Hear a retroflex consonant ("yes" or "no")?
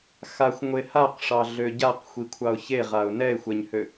yes